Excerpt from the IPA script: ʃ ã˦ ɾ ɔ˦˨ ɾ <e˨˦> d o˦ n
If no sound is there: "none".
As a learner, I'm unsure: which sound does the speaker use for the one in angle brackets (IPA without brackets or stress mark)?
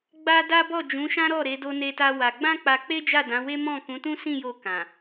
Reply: e˨˦